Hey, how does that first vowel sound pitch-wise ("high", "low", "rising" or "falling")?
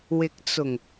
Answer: rising